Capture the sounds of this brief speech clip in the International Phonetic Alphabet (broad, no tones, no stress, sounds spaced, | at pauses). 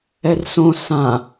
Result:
ɛ r s õ s ã